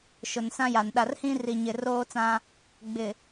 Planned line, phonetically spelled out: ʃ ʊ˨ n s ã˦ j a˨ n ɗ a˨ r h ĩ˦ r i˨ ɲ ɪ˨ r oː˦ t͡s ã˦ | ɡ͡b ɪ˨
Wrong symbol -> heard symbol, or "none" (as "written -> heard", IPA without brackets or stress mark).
none